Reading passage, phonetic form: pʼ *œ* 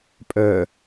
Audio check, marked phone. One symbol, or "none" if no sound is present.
œ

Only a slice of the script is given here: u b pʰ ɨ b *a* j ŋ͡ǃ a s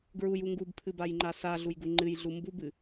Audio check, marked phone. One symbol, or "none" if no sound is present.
a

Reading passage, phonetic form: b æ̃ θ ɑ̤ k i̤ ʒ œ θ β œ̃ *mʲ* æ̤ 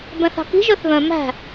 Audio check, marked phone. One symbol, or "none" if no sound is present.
m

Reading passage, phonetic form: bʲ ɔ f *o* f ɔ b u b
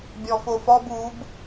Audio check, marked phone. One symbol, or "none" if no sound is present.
o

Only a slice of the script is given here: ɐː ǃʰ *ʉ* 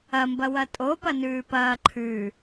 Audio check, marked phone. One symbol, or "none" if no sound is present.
ʉ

